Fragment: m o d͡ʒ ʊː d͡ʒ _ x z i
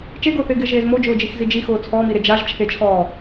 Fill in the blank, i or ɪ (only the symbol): i